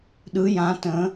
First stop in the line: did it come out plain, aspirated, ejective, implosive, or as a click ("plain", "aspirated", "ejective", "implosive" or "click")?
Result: implosive